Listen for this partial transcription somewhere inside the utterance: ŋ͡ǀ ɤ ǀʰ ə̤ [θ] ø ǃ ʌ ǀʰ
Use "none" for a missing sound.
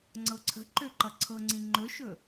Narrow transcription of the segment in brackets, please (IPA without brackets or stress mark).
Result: ǃ